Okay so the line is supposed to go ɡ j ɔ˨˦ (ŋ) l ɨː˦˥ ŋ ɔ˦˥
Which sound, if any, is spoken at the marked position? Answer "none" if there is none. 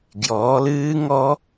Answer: none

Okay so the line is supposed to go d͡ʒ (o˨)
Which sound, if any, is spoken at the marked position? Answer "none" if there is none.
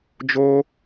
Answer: o˦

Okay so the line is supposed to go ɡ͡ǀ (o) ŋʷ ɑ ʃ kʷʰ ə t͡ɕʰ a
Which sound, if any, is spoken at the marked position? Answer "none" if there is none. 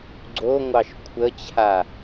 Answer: o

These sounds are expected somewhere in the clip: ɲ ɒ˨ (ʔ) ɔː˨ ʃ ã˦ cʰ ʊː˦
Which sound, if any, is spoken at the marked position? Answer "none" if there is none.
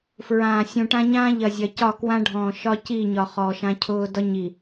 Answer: χ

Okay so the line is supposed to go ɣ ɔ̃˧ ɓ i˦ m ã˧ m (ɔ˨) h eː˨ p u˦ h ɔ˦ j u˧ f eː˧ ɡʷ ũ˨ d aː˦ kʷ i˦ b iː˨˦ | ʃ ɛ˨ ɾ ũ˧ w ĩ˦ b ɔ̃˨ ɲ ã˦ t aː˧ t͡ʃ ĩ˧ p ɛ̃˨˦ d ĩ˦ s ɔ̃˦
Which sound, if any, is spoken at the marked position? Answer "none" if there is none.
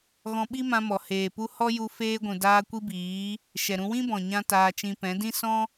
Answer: ɔ˨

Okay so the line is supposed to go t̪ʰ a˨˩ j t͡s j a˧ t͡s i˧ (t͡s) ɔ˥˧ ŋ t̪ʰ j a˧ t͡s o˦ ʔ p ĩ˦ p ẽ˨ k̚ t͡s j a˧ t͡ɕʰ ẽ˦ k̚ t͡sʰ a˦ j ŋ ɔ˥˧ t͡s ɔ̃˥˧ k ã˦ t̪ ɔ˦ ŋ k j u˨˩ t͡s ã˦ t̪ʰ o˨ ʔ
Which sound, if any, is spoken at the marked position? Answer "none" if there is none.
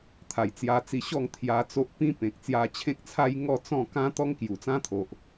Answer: ɕ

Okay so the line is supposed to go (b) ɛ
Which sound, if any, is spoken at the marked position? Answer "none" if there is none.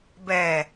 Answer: b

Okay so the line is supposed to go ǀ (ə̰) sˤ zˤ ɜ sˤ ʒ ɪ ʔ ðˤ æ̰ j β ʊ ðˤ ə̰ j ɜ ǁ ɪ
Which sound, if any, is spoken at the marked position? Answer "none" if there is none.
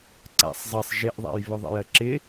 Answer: æ̰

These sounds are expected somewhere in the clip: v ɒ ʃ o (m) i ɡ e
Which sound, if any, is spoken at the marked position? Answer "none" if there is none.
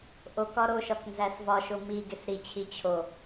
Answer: m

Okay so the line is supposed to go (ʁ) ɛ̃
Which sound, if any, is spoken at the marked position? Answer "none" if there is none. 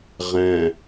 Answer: ʁ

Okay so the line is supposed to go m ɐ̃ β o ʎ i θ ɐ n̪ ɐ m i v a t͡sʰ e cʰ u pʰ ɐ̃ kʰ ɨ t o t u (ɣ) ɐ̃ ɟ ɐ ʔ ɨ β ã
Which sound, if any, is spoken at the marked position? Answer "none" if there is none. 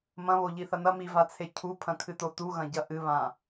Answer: ɣ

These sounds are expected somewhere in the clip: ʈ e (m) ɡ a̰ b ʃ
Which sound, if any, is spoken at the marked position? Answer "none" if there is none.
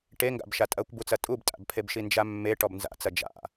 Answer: ŋ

